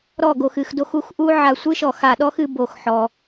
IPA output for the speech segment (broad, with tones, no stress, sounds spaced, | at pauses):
ɾ ɔ˧˩ ɡ o˩ x ɨ˩ x d o˧˩ x u˨˦ x ʔ u˦ ʕ a˧˩ sʷ ɨ˦ ʃ ɔ˧˩ x a˧˩ ɗ ɔ˦ x ɨ˨˦ b o˧˩ x ħ ɔ˩